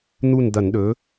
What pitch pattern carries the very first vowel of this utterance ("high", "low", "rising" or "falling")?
falling